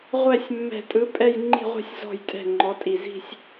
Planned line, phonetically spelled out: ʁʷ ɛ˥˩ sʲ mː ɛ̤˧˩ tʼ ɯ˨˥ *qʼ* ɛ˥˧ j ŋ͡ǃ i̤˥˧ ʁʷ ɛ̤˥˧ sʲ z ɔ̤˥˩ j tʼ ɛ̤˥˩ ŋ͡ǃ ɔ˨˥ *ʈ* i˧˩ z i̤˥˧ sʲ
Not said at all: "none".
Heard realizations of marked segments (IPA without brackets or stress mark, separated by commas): pʼ, tʼ